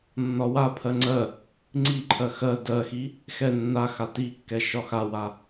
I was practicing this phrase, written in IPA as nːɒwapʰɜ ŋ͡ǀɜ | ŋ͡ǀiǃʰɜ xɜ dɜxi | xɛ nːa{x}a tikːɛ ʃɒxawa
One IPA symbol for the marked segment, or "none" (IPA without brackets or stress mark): x